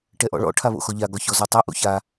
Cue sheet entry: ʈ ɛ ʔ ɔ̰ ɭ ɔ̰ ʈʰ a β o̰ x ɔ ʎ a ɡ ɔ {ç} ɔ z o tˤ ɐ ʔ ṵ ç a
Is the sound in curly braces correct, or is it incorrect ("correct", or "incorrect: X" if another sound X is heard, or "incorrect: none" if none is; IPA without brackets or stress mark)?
correct